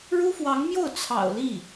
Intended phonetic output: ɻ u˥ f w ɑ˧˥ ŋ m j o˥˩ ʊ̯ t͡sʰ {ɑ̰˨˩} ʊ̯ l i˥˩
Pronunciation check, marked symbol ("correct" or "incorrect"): correct